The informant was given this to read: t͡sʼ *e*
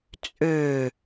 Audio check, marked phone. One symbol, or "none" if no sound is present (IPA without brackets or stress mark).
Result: ø